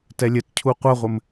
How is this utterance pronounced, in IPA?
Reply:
t ɛ lʲ ɘ t cʰ u qʷ ɐ ʁʷ ɘ m

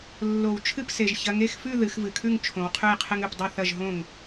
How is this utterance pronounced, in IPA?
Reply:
lː o˨˩˦ w t͡ʃʰ ɨ˥˨ p s e˨ ʒ ç ɐ˨˦ ŋ e˨˦ x f ʉ˥˨ ð ɨ˨˦ x v ɨ˨ kʰ ʉ˥˨ ŋ t͡ʃʰ õ˨˦ w qʰ ʉ˥˨ j qʰ ɨ˦ ŋ ʉ˨˦ p dˤ ʉ˥˨ θ ɐ˥˨ ʒ ɦ õ˥˨ ŋ

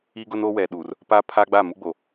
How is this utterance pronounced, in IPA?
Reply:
i˦ ɡ ʊ˦ n oː˦ w ɛ˨ ɗ uː˨ r | p a˦ pʰ aː˦ ɡ͡b a˦˨ m u˦ ɡ͡b o˨

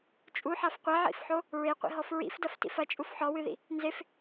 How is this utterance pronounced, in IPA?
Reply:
t͡ʃʼ u ħ a f qʷ ɛ ʕ ḭ f ħ o | ɹ e qʷ ḭ ɦ ɔ f ɹ ḭ f d ɐ f t ḭ f ɐ t͡ʃʼ u f ħ ɔ w ɨ ð ḭ | n z e f

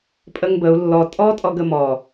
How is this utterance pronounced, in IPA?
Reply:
pʼ ə ŋ b ə u̯ lː ɔ tʼ ɔ tʼ ɔ ɡ ə m ɔ

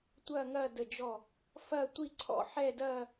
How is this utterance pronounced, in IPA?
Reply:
tʷ ɐː˥˧ ŋ ɐː˥˧ d ə˧˩ d͡ʒ ɔ˧˩ | f ɐː˥˧ tʷ i˥˧ ǀʰ ɔ̰˥˧ ħ ɛ˥˧ d ɐː˥˧

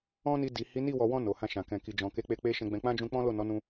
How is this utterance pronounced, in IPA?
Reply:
ɔ̃˦ n i˧ d i˨ h i˨˦ n i˦˨ w ɔ˨ w ɔ̃˧ n o˨ h ã˧ ʃ ã˨ k ɛ̃˨ k i˨ d͡ʒ ɔ̃˨ k e˨˦ k͡p e˧ k͡p e˦ ʃ ɛ̃˧ ɡ͡b ɛ̃˧ k͡p ã˦ d͡ʒ ũ˧ k͡p ɔ̃˦ l o˦˨ n ɔ˨˦ n ũ˧

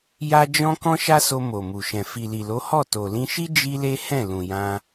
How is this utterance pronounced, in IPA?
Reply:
j a˦ d͡ʒ ɔ̃˦ k ɔ̃˦ ʃ a˦ s o˧ m o˨ m u˨ ʃ ɛ̃˨ f i˨ l i˨ l o˨˦ h ɔ˦˨ t o˨ l ĩ˧ ʃ i˦ d͡ʒ i˦ l e˦ h ɛ̃˦˨ l ũ˨ j ã˧

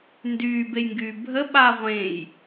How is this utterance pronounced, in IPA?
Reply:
n d yː b e j ŋ ɡ yː bʱ ə ɓ a ʁʷ ẽ j

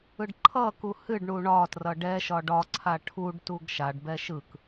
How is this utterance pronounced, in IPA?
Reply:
ɯ ɖ ǃʰ ʌ k u h ɨ ɖ ɳ u ɳ ɒ t r ʌ ɖ ɛ ʃ ɒ ɖ ɒ ǀʰ a ʈʰ u ɖ t u ɡ ʃ a ɖ b ɛ ʃ ɯ k

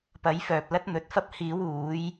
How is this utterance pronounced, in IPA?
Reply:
p ɐ˨˧ j f œː˨ p̚ l ɐ˧ t̚ n̪ ɵ˨ t̚ f ɐ˧ p̚ h iː˨˧ w uː˨˧ j

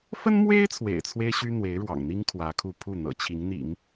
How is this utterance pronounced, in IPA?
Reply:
f ə˥ n m w e˥ ɪ̯ t͡sʰ w ḛ˨˩ ɪ̯ t͡sʰ w e˥ ɪ̯ ɕ y˥ n̪ w e˧˥ ɪ̯ ɻ w ɑ̰˨˩ ŋ n̪ i˥ ŋ kʰ w ä˧˥ kʰ u˥˧ pʰ u˥˩ n̪ ɤ̰˨˩ t͡ɕʰ i˧˥ ŋ n̪ ḭ˨˩˦ ŋ

